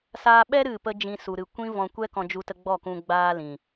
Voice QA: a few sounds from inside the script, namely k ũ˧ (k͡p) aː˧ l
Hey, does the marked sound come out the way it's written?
no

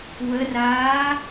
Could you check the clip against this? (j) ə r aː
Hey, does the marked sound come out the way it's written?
no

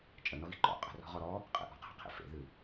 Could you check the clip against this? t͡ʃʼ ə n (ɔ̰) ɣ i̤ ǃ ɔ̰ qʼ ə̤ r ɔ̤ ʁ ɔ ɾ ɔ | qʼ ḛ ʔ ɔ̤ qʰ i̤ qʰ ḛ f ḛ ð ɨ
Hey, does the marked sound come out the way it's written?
no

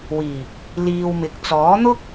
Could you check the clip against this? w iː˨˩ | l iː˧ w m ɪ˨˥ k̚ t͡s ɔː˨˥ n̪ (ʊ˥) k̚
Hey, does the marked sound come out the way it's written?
yes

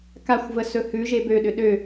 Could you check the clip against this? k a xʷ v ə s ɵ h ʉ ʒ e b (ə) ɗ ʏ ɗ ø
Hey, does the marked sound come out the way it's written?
no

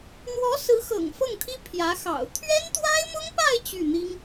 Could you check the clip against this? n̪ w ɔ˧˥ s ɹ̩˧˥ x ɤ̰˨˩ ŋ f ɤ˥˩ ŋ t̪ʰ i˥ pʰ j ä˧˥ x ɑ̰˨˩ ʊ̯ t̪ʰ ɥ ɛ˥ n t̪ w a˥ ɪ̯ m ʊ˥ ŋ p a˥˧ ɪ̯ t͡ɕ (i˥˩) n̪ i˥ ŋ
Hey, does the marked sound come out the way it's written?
no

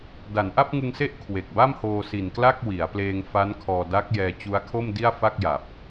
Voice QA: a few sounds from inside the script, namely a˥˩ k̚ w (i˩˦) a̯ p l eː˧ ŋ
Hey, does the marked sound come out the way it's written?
yes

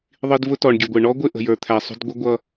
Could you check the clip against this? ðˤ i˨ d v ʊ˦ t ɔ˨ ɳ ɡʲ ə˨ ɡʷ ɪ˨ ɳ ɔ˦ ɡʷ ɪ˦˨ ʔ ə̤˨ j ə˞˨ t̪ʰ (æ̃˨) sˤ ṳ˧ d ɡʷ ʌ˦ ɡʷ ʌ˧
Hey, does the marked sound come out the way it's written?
no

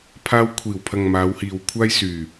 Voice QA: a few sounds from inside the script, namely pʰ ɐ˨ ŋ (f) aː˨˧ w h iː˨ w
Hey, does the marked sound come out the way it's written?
no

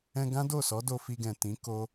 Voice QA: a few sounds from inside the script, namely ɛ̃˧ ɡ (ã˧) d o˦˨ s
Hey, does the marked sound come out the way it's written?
no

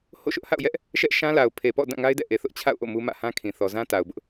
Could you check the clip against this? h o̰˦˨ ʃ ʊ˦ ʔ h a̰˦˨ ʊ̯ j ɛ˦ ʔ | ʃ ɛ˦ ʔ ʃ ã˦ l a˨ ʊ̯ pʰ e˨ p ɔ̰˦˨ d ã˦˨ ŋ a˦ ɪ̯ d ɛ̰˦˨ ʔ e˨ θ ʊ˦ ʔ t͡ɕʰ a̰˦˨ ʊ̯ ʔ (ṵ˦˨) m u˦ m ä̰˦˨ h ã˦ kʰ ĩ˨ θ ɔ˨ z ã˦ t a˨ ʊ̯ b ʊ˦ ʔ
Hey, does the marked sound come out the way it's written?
no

